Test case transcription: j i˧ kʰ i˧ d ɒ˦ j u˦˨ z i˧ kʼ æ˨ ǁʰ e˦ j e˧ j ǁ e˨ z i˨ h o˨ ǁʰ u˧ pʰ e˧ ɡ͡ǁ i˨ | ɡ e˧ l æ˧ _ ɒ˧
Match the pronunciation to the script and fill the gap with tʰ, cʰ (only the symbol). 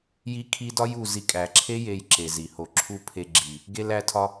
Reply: tʰ